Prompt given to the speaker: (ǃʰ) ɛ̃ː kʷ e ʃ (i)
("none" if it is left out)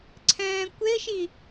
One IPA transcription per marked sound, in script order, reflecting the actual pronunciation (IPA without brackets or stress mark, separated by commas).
ǀʰ, i